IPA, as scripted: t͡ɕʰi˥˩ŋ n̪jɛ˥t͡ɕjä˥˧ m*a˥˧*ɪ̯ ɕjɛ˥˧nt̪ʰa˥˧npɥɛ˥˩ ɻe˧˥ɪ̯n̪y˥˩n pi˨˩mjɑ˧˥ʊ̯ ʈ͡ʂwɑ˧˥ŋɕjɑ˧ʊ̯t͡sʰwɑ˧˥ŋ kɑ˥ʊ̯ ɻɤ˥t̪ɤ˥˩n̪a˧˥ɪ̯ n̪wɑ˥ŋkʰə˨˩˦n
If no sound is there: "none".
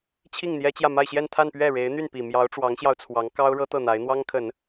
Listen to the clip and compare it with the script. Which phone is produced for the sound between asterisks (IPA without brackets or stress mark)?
a˥˧